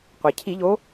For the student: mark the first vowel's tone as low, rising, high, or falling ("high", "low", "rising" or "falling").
low